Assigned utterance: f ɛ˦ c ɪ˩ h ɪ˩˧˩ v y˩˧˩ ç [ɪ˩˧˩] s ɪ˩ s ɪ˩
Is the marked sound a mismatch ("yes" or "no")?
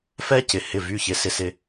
yes